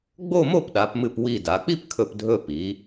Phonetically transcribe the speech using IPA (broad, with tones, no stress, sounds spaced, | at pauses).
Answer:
ɡ͡b o˥˧ m o˥˧ p ɗ a˩˧ p m ɨ˧˩ p w i˧˩ d a˩˧ k͡p i˥ p kʰ ɵ˧˩ p dʱ ɵ˧ p i˩˧